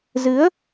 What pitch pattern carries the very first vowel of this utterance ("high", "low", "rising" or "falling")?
rising